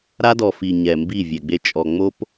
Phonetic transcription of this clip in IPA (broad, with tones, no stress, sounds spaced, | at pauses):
ɾ a˦ d ɔ˨ f i˨ ɲ ɛ˨ m b i˦˨ vʲ ɛ˨ ɡ͡b e˦ t͡ʃʼ ɔ˨ ŋ͡m o˦ p